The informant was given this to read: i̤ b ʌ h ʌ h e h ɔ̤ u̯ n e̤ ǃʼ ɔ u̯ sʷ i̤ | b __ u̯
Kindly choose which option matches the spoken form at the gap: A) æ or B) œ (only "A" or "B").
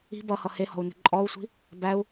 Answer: A